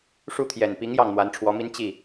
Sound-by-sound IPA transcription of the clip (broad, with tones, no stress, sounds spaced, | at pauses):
ʂ u˥˩ t̪ʰ j ɛ˨˩ n p i˧˥ ŋ j ɑ˥˩ ŋ n̪ w a˧˥ n ʈ͡ʂʰ w ɔ˧˥ m i˥ n t͡ɕ i˥˩